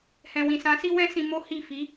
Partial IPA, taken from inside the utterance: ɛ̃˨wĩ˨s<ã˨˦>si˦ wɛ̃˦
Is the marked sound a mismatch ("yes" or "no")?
no